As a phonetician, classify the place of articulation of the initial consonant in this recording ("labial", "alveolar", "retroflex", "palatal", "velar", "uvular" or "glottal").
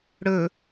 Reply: retroflex